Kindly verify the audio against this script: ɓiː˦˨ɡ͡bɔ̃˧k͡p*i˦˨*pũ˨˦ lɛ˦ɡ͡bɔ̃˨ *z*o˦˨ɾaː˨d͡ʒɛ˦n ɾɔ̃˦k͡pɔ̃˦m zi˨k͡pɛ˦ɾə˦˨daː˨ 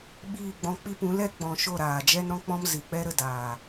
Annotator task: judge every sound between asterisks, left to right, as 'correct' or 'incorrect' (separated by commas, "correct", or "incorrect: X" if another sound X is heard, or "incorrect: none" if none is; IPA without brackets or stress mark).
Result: incorrect: i˦, incorrect: ʃ